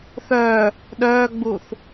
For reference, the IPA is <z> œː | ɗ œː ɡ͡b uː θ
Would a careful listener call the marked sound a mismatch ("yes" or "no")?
yes